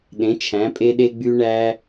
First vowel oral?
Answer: no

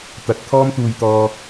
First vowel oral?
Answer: yes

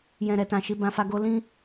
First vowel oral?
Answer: no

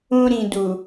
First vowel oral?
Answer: no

